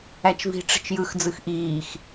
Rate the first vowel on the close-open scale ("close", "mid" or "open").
open